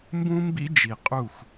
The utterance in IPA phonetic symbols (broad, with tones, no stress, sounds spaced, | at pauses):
m b ũ˦ m b ḭ˦ d͡ʒ i˨ qʼ u˦˨ x